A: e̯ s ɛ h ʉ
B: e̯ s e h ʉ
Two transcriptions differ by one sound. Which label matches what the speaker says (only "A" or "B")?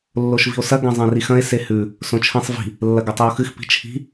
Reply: B